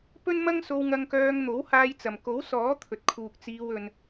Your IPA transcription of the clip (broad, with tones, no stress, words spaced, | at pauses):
pɵ˥nmɐ˥ŋso˧w ŋɐ˧ŋkœː˧ŋn̪o˨˥w haː˧jt͡sɐ˨m ko˨˥wsɔː˨˥t̪ʰɵ˨t̚kʰuː˨k̚ t͡siː˧w ɵ˧n